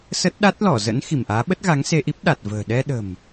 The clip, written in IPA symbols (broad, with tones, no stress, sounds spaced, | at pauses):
s ə˦˥ t̚ ɗ a˦˥ t̚ l ɔ˧˩ z ə̰˧˥ n x i˧˩ m ʔ aː˨˦ ɓ ə˦˥ t̚ ɣ a˨˦ ŋ s e˧ ʔ i˦˥ p̚ ɗ a˨˩ t̚ v ə̤ː˨˩ ɗ ɛ˧ ɗ ə̤˨˩ m